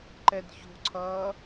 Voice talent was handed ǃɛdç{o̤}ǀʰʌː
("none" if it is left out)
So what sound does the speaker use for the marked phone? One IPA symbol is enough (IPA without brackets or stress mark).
o̤